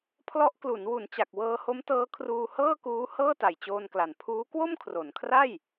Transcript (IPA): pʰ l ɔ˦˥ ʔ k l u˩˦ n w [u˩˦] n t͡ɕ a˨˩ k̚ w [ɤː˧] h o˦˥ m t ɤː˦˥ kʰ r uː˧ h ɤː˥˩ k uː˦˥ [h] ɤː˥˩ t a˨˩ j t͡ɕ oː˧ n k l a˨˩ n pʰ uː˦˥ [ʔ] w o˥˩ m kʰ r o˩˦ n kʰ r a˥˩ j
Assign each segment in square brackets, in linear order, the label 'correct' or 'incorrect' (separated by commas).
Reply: correct, correct, correct, incorrect